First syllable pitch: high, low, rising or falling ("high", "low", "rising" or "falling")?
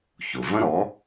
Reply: low